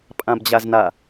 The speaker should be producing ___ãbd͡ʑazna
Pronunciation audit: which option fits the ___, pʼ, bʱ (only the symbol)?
pʼ